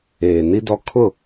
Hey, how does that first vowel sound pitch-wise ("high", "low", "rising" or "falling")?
low